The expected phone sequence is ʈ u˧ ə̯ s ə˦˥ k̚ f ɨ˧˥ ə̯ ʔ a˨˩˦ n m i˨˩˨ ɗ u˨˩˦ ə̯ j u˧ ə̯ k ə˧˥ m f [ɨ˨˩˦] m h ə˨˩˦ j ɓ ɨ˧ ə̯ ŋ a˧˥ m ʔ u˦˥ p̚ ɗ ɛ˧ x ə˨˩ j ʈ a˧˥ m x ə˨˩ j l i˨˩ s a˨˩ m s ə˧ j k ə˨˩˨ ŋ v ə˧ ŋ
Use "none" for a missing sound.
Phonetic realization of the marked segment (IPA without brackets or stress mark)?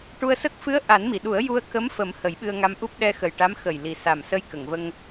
ə˨˩˦